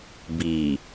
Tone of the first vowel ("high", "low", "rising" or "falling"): low